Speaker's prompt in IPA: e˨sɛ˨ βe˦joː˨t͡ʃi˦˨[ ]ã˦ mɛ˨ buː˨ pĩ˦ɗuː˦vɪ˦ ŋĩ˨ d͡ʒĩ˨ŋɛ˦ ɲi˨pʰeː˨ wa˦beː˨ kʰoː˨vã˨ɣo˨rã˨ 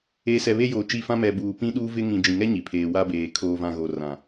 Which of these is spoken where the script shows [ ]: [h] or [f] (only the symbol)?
f